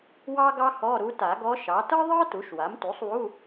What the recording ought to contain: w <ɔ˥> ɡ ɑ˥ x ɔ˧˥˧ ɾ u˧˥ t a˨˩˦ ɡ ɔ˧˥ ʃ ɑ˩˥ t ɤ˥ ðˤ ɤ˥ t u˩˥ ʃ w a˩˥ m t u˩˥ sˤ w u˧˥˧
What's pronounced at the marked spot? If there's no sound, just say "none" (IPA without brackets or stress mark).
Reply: ɑ˥